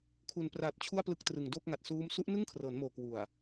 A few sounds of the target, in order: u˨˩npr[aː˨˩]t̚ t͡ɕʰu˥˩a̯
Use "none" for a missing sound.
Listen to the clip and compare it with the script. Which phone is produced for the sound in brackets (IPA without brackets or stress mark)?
aː˨˩